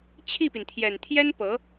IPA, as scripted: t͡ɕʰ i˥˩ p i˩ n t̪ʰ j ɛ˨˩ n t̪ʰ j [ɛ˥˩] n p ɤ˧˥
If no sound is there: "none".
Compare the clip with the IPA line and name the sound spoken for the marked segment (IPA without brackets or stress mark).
ɛ˥